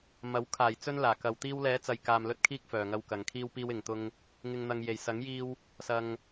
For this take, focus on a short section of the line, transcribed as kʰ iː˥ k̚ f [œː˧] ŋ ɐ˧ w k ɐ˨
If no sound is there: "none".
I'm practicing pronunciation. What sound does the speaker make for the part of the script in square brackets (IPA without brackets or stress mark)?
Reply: œː˨